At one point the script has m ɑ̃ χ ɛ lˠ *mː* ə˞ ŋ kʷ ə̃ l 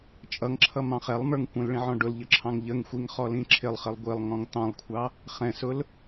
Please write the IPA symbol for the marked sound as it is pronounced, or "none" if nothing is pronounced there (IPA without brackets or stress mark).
m